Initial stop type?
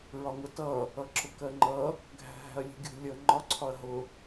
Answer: plain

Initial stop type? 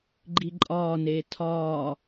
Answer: click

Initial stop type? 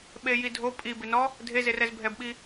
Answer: implosive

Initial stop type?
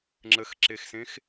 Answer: click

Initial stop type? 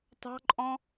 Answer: plain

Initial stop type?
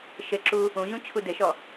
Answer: click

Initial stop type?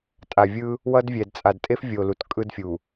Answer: ejective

